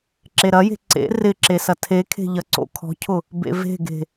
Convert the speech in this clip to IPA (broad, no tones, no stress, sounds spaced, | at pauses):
ǁ e ɾ ɐ j e̤ ǀ ḛ r ɪ ǁ e s ɐ tʰ e kʰ e̤ ʎ ɐ ǀ o̰ kʰ ɔ̤ cʰ ʊ | b ḛ v e̤ ɡ e̤